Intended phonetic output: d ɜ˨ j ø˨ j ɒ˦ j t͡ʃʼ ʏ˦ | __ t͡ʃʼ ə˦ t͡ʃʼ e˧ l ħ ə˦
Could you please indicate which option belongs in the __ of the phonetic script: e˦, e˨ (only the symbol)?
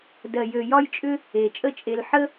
e˨